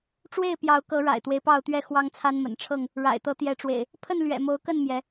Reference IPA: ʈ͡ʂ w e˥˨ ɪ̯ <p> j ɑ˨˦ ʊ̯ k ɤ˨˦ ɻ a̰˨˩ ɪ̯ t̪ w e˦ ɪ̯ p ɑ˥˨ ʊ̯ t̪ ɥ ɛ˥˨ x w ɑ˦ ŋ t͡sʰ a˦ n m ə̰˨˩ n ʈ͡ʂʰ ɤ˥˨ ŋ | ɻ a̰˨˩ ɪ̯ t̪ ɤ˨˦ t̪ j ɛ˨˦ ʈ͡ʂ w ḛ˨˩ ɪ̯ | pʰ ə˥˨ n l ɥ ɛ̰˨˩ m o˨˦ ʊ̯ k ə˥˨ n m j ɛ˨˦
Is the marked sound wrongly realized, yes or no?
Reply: no